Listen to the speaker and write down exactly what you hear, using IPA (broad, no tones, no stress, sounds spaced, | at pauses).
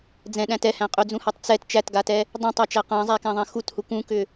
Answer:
d͡z ɛ̃ ɗ æ̃ t ɛ h æ̃ qʼ ʏ d͡z ũ h a tˤ t͡s ɛ t t͡ʃ æ t ɡ a t ɛ | dˤ æ̃ tˤ a t͡ʃ æ q ã zˤ æ k æ̃ ðˤ ɛ̃ x u t h u k ũ k ʏ